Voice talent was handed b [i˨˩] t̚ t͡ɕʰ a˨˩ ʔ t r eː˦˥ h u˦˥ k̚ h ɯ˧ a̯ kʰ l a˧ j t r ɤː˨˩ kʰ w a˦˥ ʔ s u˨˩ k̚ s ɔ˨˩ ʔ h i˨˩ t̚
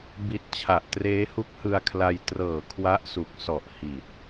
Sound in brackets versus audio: correct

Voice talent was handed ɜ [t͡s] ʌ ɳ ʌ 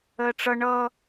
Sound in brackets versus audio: incorrect: ʈ͡ʂ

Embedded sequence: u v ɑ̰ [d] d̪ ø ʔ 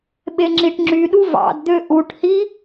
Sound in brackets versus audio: correct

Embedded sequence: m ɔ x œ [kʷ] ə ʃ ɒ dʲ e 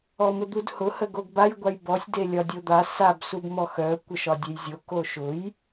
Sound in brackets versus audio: correct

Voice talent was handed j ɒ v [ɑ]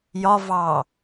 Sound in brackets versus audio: correct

